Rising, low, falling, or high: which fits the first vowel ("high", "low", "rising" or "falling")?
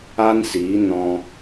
high